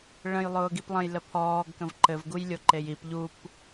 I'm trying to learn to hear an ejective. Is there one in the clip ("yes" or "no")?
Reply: no